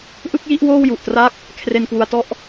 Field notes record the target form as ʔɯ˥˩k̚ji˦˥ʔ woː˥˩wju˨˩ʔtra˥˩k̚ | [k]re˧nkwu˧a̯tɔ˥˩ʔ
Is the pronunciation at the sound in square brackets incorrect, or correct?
incorrect